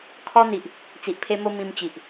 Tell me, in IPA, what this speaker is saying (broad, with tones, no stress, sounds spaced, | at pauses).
kʰ ɔ˧ n̪ i˨ ʔ | t͡s i˨ ʔ pʰ e˧ m o˧ m ĩ˧ m t͡ɕ i˨ ʔ